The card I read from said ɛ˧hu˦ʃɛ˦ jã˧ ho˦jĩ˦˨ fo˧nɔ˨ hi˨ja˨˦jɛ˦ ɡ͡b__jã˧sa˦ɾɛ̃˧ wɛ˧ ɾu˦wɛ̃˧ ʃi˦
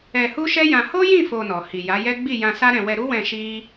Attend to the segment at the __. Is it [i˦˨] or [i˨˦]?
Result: i˦˨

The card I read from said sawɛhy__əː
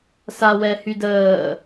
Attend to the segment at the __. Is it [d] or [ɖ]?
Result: d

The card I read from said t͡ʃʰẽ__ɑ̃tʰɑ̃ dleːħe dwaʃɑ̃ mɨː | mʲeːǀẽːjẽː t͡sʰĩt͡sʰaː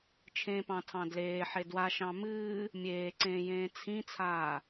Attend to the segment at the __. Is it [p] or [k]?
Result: p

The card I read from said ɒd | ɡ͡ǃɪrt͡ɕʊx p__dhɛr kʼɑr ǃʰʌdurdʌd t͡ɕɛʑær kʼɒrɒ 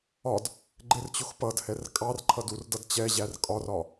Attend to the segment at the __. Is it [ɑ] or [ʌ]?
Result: ʌ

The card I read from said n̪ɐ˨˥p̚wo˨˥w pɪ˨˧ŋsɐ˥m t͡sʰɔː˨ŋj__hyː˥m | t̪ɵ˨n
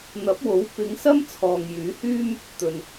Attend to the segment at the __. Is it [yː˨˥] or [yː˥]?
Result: yː˨˥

